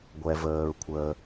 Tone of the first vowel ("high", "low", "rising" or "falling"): low